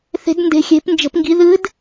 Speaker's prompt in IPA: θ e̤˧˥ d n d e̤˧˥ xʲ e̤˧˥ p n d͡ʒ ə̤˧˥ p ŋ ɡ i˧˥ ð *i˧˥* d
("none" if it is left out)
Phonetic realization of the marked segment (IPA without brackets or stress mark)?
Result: ɨ˧˥